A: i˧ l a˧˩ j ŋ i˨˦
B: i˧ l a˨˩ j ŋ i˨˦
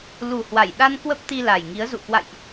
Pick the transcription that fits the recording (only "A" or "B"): B